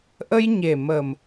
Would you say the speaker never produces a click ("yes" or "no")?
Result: yes